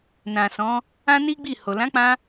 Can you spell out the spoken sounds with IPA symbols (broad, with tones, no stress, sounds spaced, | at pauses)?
n ã˨ s ɔ̃˨˦ | ã˦ n i˦ ɡ͡b i˦˨ h o˨ l ã˨˦ k͡p ã˧